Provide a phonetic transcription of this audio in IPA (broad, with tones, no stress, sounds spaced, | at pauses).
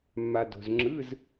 mː a˨ d o̤˨ z ŋ͡ǁ ɯ˧˥˧ z